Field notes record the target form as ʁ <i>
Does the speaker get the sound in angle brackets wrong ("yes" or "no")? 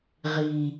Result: no